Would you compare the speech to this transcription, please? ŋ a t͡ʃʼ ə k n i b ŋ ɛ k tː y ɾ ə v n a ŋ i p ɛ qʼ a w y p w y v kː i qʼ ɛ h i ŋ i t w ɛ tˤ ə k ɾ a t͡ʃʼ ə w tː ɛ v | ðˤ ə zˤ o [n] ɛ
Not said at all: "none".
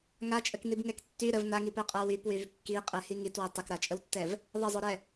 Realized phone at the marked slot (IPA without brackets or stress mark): ɾ